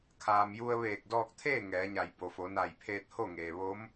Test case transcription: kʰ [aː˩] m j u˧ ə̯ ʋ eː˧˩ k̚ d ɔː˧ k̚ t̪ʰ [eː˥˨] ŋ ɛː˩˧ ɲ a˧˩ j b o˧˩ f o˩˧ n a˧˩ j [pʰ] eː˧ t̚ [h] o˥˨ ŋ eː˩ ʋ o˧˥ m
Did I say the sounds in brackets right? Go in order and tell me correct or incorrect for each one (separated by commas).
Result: correct, correct, correct, correct